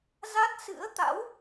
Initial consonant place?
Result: alveolar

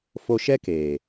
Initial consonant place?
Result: labial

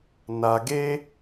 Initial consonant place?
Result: alveolar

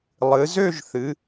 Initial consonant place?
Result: alveolar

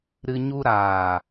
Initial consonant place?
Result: alveolar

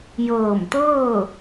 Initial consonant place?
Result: palatal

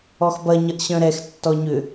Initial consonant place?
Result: velar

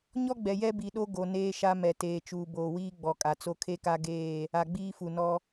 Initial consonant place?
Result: palatal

